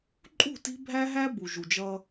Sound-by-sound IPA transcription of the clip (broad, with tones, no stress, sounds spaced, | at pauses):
ǃʼ ṳ˦˨ t i̤˦ bʱ æ˦ ɦ æ˦ b u˨ ʒ u˨ d͡ʒ ʌ˦